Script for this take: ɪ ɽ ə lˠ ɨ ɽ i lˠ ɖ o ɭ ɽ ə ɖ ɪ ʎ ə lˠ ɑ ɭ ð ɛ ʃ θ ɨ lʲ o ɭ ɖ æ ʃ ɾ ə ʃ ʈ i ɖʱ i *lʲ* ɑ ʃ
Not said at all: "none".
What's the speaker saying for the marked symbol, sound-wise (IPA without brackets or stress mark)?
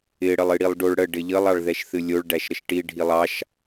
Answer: lˠ